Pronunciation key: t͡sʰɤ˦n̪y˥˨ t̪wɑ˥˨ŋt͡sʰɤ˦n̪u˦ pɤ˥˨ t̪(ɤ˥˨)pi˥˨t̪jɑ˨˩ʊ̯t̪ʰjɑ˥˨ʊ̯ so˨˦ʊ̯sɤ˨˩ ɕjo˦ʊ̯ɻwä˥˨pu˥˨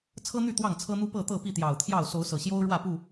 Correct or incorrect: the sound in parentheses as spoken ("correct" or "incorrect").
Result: correct